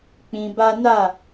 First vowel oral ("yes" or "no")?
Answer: no